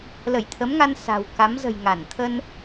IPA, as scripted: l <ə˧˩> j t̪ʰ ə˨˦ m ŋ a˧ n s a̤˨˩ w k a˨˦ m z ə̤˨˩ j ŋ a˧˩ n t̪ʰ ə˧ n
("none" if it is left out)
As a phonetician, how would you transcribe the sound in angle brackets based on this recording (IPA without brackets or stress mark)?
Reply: ə˧˩